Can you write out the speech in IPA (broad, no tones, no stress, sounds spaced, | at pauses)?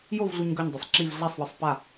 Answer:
j o v ɮ u ɲ ɡ ɒ ɲ dˤ a sˤ ǁ i v ɮ a sˤ w ɒ sˤ p a